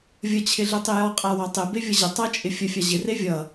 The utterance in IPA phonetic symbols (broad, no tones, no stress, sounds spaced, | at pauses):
vʲ ə t͡ɕʰ ɪ ɮ ɪ tˤ i j ɔ qʼ a w ɔ tˤ ɪ b e vʲ ʌ ʑ ɪ tˤ ʌ t͡ʃʼ ɪ fʲ ə fʲ a ʑ ɪ r e vʲ ʌ